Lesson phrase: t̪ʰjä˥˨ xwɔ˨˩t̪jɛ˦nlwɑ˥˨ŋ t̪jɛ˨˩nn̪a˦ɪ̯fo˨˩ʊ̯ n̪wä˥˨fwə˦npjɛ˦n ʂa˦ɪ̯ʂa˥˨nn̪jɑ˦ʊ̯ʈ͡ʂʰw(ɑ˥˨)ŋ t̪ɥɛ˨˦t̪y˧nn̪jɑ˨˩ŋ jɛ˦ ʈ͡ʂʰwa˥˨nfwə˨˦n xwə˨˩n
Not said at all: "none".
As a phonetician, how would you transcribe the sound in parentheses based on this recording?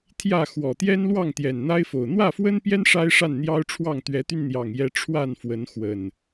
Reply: ɑ˥˨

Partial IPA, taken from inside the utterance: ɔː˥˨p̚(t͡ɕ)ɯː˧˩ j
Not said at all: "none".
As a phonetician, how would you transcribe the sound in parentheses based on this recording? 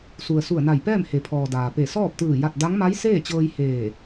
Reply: t̪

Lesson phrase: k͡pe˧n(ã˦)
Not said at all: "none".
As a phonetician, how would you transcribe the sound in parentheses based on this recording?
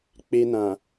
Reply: ã˨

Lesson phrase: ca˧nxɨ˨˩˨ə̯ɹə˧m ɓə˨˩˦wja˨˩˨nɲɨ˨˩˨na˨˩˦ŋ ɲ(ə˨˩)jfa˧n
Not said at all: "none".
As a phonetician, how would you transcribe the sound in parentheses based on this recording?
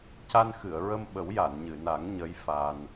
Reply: ə˧˥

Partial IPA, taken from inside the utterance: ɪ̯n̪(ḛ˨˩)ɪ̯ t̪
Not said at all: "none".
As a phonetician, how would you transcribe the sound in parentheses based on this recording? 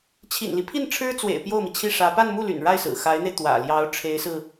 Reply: e˧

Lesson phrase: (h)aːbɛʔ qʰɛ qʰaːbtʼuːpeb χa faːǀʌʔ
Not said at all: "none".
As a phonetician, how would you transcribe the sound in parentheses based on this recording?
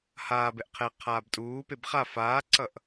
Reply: h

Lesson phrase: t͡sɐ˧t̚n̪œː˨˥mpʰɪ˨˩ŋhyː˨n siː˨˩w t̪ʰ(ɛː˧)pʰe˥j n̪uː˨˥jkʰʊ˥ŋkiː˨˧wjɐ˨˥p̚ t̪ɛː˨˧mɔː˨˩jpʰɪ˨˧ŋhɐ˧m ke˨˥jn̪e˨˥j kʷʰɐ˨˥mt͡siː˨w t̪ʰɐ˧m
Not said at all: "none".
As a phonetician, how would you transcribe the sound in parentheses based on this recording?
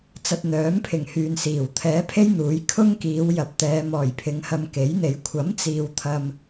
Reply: ɛː˨˥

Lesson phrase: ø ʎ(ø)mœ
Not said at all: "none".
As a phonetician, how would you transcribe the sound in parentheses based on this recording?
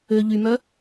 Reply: y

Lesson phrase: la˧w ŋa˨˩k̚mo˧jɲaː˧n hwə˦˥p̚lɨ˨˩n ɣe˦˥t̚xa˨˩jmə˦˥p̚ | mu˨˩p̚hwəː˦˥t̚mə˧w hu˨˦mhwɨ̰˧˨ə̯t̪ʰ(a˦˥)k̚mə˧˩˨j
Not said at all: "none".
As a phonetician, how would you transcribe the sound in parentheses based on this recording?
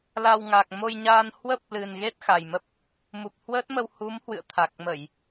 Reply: a˨˩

